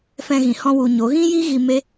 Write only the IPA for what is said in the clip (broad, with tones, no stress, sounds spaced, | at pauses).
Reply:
f ɛ̃˧ ɣ ĩ˨ h ɔ̃˧ w u˨ ɲ o˨˦ ɣ ĩ˦ j i˦ ɣ i˧ m e˦